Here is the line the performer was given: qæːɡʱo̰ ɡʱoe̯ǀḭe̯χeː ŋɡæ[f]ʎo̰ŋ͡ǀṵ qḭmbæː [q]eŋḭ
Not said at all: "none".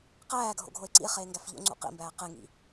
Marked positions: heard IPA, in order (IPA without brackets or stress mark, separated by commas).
f, q